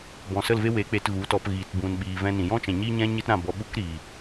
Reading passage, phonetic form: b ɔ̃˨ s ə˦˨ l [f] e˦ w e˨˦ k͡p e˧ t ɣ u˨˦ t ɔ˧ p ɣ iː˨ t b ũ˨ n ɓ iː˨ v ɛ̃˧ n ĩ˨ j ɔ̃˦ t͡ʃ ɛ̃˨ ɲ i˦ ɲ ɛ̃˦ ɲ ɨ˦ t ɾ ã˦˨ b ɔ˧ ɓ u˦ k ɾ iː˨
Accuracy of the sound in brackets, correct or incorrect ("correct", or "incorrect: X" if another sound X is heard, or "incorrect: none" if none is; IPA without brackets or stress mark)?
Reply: incorrect: v